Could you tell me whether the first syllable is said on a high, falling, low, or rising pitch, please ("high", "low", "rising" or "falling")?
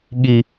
high